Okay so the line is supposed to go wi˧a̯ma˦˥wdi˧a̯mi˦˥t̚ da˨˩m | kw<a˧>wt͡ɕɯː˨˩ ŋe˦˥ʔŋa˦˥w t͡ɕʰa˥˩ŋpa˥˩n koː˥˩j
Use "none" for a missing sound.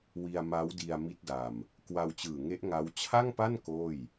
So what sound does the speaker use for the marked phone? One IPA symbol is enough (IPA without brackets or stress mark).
a˧